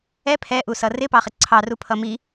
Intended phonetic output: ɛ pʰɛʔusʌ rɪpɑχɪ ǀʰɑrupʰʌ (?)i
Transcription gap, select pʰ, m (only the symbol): m